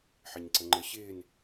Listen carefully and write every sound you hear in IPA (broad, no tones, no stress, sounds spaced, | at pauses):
ħ ɐ ɲ ǀ ə ŋ͡ǃ ə ɕ ɪː n